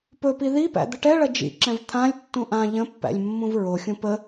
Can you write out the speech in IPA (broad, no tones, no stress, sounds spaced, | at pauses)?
p ɵ p i ð i p æ̰ d̪ ə ʈ ɛ ɭ ɐ d͡ʒ ḭ ǁ ɛ̃ v t̪ʰ ã lʲ tː ũ ʔ ã ʎ ə̃ pː æ̰ lʲ mː ũ v ɹ o xʲ ũ p ə